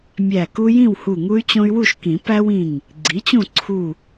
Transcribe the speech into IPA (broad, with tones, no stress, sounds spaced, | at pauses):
mʲ æ˧˩ k u˦ j ĩ˥˨ w h u˧˩ ŋ u˦ y̯ t͡ɕ õ˦ y̯ w u˥˨ ʃ k ĩ˨˩˦ p æ˦ w ĩ˧˩ ŋ | ɡ͡ǀ i˩˥ t͡ɕ ũ˥˨ ǀʰ u˥˨